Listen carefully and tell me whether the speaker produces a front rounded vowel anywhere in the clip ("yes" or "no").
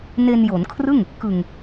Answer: no